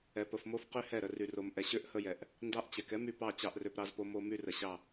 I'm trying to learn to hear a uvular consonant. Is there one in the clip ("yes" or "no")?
yes